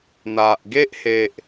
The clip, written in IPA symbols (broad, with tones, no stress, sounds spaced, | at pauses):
n̪ a˨ ʔ ɡ e˦ ʔ h e˨ ʔ